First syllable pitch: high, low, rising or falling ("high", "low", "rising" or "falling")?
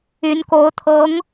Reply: rising